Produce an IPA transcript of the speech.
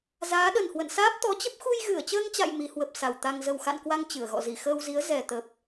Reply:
z aː˨˦ ɗ ə˨˩ n h w ə̰˧˨ n s aː˦˥ p̚ t̪ ɔ˨˦ t͡ɕ ə˦˥ p̚ x u˧ j ɣ ɨ˧˩ ə̯ t͡ɕ əː˧ ŋ t͡ɕ a̰˧˨ j m i˨˦ h w ə˨˩ p̚ s a˨˩ w t̪ a˧ ŋ z ə˨˩ w x a̰˧˨ n k w a˧ ŋ t͡ɕ ɨ˧˩ ə̯ ɣ ɔ̰˧˨ z i˧˩ x əː˧ w z i˨˦ ə̯ z ɛ˨˩ t̪ ə˨˩ p̚

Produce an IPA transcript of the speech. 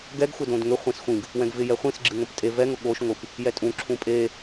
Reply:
ɡ ɛ ɡ xʷ ɛ d õ d ŋ ʏ χʷ ɛ̃ s xʷ ĩ ɡ | w ɛ̃ ɡ v ɪ j ɛ χʷ ĩ s ɡ͡ǁ ɨ ŋ õ p tʼ e v ɛ ŋ ʊ ɠ o ʃ ŋʷ ɨ p | j ɛ tʼ ũ ǁʰ ũ pʼ e

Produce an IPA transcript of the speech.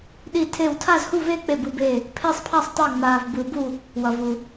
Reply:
ɗ i˥˧ tʰ e˥˧ w tʰ a˥˧ z h u˥˧ v e˥˧ k͡p e˥˧ b ɯ˥˧ b eː˥˧ | pʰ e˥˧ sˤ pʰ a˥˧ sˤ tˤ ɛ˥˧ ŋ͡m aː˧ v b ɯ˧ b u˥˧ | w ʌ˧ v u˧

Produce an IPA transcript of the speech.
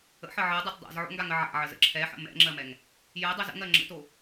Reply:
ə̰ ħ ə ʕ ɜ dˤ ɛ t dˤ a̰ z ʕ o̰ ŋ ɡ a ŋ ə ʕ a̰ ʕ ə z ə̰ ǁʰ ɛ ħ ə̰ m ɛ̰ ŋ͡ǁ ɜ m ɛ ŋ | j ɜ dˤ ɛ z ə̰ ŋ ɜ ŋ͡ǁ ə̰ t o

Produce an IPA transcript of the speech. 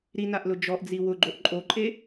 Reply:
ɾ i n a ʔ l ʊ d͡ʒ ɔ ʔ d͡z i w ʊ ɡ͡ǃ o ʔ ǃʼ o ǃʼ e

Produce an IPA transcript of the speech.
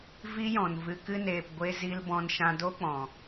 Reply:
v i˦ j ɔ̃˨ n v ɨ˨ k ɨ˧ n eː˨ p ɡʷ e˧ z i˧ l b ɔ̃˧ n ʃ ã˧ d o˦ k͡p ɔ̃˨

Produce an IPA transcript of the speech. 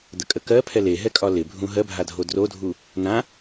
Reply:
d̪ ə kʼ ə k ɜ pʰ ɛ l e ɦ ɛ kʼ ɒ l ɪ bʱ ũ ɦ ɜ bʱ a dʱ o d r o dʱ u | n ã

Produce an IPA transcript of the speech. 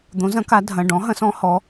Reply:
d̪ õ˨˥ z ɐ̃˨˥ k a˨˥ dʱ ɐ̃˩˧˩ ɖ ɔ̃˨˥ ɦ ɐ̃˨˥ s ɔ̃˨˥ h ɔ˨˥

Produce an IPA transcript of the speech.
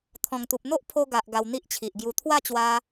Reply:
t̪ʰ ɔ̃˨˩ ŋ t̪ u˨ p̚ n̪ o˦ ʔ pʰ o˧ ɡ a˨ ʔ ɡ a˧ w n̪ i˦ ʔ t͡ɕʰ i˨ ʔ ɡ j u˧ t̪ʰ w a˥˧ t͡ɕ w a˧

